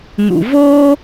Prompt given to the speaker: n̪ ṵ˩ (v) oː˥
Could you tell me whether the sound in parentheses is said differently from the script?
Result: no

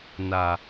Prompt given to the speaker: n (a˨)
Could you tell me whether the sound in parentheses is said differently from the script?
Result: no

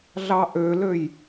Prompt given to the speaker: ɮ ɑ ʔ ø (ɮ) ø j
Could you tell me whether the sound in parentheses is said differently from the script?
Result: yes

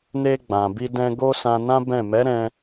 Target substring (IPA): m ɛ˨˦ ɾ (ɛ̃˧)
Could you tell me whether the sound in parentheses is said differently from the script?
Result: no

